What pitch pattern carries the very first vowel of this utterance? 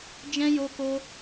high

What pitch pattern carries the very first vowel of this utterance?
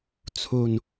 low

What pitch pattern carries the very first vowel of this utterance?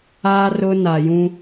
high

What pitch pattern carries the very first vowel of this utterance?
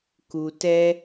low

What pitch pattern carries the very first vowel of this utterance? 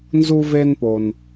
high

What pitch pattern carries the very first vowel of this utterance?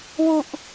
low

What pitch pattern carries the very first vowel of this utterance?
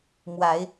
rising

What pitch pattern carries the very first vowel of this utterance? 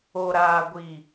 low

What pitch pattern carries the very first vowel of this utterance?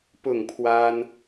falling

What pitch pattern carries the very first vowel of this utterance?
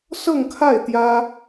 falling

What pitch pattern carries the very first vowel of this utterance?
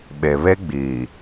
low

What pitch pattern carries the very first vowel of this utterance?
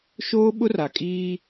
high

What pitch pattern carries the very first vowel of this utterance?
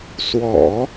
low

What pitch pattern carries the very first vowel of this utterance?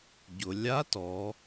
low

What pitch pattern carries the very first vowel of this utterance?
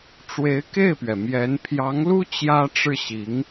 rising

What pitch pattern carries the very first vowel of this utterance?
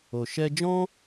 low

